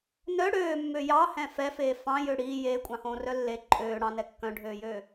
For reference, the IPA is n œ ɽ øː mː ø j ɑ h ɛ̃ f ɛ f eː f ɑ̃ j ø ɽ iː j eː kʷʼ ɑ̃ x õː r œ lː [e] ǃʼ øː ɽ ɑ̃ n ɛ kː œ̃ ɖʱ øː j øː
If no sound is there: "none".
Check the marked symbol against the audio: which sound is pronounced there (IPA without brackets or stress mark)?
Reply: e